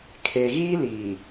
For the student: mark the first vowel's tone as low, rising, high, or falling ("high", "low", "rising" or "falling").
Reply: low